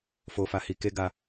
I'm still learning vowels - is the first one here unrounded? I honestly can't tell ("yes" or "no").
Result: no